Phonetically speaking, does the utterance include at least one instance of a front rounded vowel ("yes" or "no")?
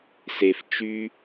yes